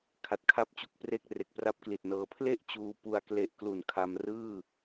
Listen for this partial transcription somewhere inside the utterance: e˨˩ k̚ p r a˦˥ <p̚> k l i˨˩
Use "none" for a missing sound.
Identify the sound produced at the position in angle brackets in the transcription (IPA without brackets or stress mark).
p̚